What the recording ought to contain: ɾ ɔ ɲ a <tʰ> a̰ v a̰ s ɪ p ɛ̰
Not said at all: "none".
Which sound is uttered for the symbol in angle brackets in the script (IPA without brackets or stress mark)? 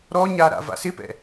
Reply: ɾ